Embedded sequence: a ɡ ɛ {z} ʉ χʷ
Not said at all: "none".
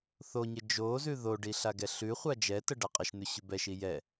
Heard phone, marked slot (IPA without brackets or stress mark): ɬ